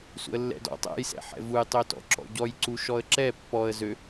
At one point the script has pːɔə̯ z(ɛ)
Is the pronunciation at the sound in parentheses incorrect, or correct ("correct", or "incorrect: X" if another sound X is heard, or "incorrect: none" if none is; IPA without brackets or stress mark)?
incorrect: ø